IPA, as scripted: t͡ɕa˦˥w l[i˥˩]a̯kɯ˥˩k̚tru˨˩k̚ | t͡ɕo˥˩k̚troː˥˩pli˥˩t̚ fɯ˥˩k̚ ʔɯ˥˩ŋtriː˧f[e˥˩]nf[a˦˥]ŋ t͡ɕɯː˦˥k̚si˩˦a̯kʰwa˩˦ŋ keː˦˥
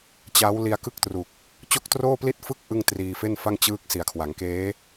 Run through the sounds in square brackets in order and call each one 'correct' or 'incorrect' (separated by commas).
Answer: incorrect, correct, incorrect